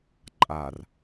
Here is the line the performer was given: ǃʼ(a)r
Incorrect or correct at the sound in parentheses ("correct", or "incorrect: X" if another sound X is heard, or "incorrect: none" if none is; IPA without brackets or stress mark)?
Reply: correct